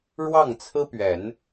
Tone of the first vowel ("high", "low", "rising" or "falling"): falling